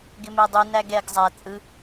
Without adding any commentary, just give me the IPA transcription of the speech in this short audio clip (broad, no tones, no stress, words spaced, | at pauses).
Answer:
ɡɪmɛdˤy næɡɛɡ zˤæ t͡sʼɯ